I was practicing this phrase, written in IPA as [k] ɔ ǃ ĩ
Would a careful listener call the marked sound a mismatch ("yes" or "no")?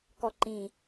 no